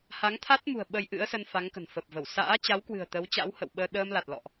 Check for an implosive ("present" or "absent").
present